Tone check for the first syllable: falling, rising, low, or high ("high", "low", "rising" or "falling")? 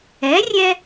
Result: rising